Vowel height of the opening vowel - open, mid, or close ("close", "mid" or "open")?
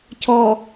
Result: mid